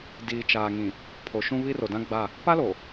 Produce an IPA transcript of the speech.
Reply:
diː˨t͡ʃaː˨ŋĩ˨ | pʰo˨ʃũ˦ βi˦ro˨dã˦ ɡ͡ba˦˨ | pa˦lo˨

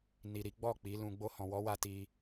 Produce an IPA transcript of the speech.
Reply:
ni˨ɾi˨˦ɡ͡bɔ˦˨ k͡pi˨˦lũ˧ ɡ͡bo˧hɔ̃˨wɔ˨˦wa˧ ti˧

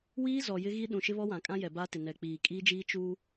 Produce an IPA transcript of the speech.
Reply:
wiː˦zɔ˨ jɪ˦ɣi˦ ɗũ˨ʃɪ˦βɔ˦ wã˨kʼã˦ jɛ˨baː˦tɪ˨ nɛ˨k͡piː˨ kʼiː˦d͡ʒiː˦ t͡ʃuː˦

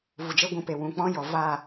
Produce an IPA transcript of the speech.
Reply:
vu˨d͡ʒe˦ɡʷũ˧pe˨ wũ˨k͡pɔ̃˦ jɔ˨va˦˨

